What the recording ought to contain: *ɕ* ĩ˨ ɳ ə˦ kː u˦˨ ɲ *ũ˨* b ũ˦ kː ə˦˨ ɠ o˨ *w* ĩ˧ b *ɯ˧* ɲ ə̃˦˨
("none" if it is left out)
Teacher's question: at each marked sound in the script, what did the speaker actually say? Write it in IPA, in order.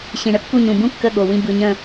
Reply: ɕ, ũ˨, w, ɯ˧

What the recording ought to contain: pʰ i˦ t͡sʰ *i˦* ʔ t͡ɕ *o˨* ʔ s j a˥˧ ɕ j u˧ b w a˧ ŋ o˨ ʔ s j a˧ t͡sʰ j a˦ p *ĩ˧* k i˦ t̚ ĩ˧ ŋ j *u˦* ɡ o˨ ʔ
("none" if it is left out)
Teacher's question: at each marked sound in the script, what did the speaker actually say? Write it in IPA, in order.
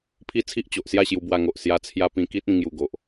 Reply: i˦, o˨, ĩ˧, u˧

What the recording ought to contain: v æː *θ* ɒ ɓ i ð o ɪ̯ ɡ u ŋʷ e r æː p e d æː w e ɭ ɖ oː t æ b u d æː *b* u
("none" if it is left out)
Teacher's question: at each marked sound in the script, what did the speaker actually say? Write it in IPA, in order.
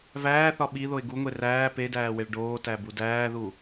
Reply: θ, ð

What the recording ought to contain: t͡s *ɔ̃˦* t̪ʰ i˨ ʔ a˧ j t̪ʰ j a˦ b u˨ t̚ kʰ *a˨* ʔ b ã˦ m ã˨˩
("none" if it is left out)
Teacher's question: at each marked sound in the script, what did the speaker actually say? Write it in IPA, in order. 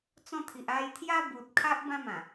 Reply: ɔ̃˦, a˦

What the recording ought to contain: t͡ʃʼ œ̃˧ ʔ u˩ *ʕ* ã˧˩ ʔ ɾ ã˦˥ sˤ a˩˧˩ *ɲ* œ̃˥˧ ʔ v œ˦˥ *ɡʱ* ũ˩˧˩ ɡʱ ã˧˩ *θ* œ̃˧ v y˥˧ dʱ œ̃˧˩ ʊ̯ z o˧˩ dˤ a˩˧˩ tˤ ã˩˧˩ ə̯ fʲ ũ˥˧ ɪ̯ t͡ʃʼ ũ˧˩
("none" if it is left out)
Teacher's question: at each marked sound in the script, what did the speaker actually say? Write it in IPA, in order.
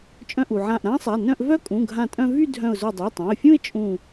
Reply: ʕ, n, kʼ, tʼ

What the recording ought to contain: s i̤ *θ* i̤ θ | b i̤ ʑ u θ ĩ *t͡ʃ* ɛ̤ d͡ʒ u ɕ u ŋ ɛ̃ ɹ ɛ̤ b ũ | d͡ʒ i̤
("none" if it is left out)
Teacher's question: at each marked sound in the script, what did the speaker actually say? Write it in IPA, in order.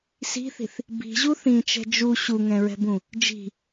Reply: θ, t͡ʃ

